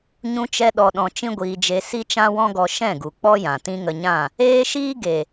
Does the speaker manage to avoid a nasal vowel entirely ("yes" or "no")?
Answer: no